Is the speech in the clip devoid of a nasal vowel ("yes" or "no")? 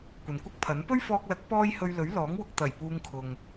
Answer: yes